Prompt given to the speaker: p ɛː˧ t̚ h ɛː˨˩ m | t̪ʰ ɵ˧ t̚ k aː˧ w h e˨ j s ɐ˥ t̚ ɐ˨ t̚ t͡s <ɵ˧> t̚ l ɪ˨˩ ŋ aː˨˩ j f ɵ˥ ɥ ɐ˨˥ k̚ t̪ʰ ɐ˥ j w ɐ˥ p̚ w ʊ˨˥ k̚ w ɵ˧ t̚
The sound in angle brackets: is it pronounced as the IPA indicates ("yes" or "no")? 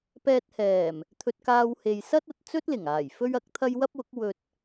no